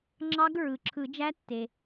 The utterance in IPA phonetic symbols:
ŋ͡ǁ ɑ˦˥ ɡ ɹ ɯ˩ ǁʰ ɯ˨˩˦ d͡ʒ æ˦˥ tː e˩

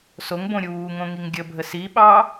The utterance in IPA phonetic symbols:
s o ŋ b õ ɾʲ uː ŋ õ ŋ i ŋ ɡʲ ə bʱ ə s i ɓ ɑ

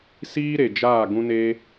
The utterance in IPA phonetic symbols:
s iː˦ ɾ e˨ d͡ʒ aː˦˨ ɡ ũ˦ n eː˦

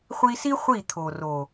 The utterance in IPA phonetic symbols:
χʷ i˧ s i˦ χʷ i˦˨ t̪ʰ o˨ r o˨

